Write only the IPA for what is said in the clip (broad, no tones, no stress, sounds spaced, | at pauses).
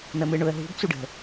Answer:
n̪ ə m ɯ ɳ ʊ ə̯ ɦ ṳ b t͡s u ɖ ə̤